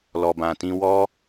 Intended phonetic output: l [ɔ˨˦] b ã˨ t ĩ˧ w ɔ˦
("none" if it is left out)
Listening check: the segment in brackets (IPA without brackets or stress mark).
ɔ˨